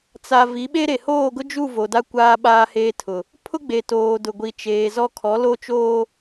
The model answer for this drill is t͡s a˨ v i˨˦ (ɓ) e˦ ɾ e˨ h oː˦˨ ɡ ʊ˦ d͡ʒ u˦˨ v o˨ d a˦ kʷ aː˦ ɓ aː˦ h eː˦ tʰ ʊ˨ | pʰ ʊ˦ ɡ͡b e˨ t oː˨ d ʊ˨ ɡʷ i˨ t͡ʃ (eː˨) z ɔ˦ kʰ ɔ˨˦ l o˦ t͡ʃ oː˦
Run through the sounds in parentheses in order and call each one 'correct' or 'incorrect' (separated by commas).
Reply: correct, correct